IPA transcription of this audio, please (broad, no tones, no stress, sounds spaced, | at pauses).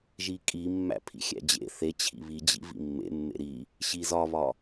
ʒ i kʼ i mː æ̰ pʰ ḭ xʲ æ̰ d͡ʑ ḛ θ e t͡ɕʰ ḭ β i d͡ʑ ḭ v ḭ mː ḛ mː ḛ ɾ i | ɕ i z ɒ β ɒ